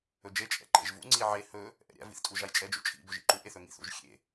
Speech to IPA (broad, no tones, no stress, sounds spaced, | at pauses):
ɵ d͡ʒ e t͡ʃʼ ɛ̰ ǃ ḛ ʒ v ṵ ŋ͡ǀ i ʕ e h ɵ | ʔ ɛ̰ ɾʲ a̰ v ḭ θ tʼ u ʒ a j t͡ʃʼ ɛ d͡ʒ ṵ t͡ʃʼ ḭ b ɵ ʒ ḭ ǃ u ʔ e θ ɵ ŋ ḭ θ ṵ ʒ xʲ ḛ